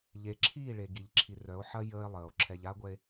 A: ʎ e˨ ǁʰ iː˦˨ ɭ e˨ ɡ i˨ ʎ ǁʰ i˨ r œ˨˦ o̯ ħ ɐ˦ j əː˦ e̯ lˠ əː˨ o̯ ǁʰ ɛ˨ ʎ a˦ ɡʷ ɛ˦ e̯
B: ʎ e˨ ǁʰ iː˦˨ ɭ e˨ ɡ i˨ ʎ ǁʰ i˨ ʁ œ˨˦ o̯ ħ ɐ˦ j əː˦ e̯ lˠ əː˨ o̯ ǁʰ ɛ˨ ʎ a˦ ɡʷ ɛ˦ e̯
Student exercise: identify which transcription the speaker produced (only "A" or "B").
A